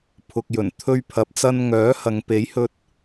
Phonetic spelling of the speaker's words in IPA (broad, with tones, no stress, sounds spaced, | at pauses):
pʰ ʊ˨ k̚ j ɵ˨˩ n t̪ʰ ɵ˧ ɥ pʰ ɐ˨ p̚ t͡s ɐ˧ n ŋ œː˨˥ h ɐ˨ ŋ p e˨˥ j h ɵ˧ t̚